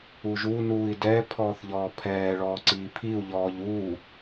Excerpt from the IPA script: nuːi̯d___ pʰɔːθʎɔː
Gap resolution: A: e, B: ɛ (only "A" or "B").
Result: B